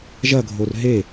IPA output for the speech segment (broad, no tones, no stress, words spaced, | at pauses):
ʒɐɡʱor ɦe